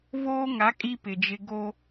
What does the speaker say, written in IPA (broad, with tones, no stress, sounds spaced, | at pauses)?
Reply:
v oː˦ ŋ a˨˦ kʼ i˦ p ɪ˨ d͡ʒ ɪ˦ ɡ o˦